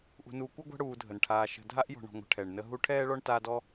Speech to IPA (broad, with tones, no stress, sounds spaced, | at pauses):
ʔ ṳ˨ n uː˨ kʷ ə˥ ɡʷ a̤˦ ɽ uː˨ dʱ ə˩ n ʈʰ aː˨ ʃ ə̤˨ dʱ a˥ ʔ j ɔ̤˨ ɳ ɔ̤˨ ŋʷ ə̤˨ ʈʰ ɛ˩ ɳ n ə˦ ɦ u˦ ʈʰ ɛː˥ ɭ ɔ˥ ɳ t aː˦ d ɔ˥